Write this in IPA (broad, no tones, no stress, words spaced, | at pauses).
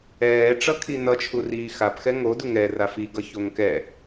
ɛːʈ͡ʂʌkʰi nʌt͡ʃʰuriː xapxɛ ŋodu ŋɛra fiɡʌçoŋ kɛ